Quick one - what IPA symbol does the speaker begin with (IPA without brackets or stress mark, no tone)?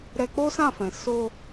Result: ɾ